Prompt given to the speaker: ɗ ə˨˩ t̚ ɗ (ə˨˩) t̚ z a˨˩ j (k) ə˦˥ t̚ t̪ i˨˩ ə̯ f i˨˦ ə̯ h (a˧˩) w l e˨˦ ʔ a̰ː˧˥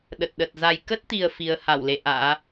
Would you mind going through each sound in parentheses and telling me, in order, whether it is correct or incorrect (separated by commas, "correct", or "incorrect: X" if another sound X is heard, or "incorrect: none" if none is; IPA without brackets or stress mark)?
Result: correct, correct, correct